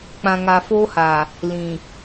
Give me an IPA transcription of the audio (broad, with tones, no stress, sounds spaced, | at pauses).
k͡p ã˨ ŋ a˨ f oː˦ h a˨ | l ĩ˨